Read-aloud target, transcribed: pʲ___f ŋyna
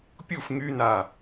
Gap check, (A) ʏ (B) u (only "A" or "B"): B